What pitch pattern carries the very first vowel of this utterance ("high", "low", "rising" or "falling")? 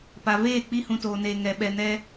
low